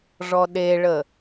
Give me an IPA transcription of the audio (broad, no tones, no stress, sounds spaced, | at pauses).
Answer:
ʐ ɔ ɗ e ɭ ə